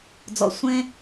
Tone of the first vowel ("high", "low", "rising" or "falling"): low